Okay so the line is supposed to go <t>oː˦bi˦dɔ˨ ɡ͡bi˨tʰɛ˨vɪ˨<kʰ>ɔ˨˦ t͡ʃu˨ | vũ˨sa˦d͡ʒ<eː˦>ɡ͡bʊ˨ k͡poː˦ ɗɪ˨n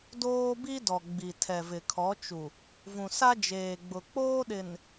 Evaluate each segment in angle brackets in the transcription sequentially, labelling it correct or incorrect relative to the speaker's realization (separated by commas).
incorrect, correct, incorrect